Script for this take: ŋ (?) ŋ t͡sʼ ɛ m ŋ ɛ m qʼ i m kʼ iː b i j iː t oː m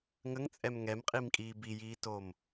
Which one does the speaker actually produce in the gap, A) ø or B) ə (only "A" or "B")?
B